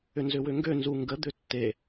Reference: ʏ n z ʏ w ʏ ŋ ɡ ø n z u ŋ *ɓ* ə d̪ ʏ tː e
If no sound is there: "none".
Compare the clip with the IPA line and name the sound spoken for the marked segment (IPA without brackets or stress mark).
ɡ